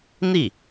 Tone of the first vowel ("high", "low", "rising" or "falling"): falling